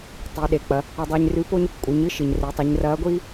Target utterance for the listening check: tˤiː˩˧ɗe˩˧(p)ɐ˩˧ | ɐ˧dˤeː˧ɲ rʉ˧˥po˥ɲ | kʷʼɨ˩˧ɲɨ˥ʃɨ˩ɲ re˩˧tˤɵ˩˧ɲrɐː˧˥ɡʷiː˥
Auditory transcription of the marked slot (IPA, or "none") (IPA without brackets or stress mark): k͡p